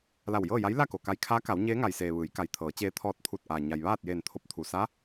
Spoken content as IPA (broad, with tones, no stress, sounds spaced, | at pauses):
l a˧˩ w j ɤː˥˨ j a˧˥ j l a˥˨ k o˩ k a˧ j kʰ aː˧˥ k a˩˧ w ɲ eː˧˥ ŋ a˩ j s eː˩ ʋ ɯː˩˧ j k a˩ j t̪ʰ ɤː˩˧ t͡ɕ eː˧ t̪ʰ ɔː˧ t̚ t̪ʰ u˧˩ t̚ ʔ aː˩ ɲ a˩ j ʋ aː˥˨ t̚ j eː˧˩ n t̪ʰ o˧ p̚ t̪ʰ u˩ s a˧˥